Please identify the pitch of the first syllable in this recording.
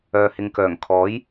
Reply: low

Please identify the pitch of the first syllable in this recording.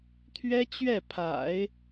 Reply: high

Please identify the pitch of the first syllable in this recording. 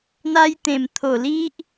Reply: high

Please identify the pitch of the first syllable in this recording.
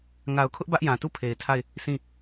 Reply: low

